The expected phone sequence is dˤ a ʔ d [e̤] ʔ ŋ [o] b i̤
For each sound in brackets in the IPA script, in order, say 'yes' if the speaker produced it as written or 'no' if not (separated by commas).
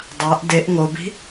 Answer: no, yes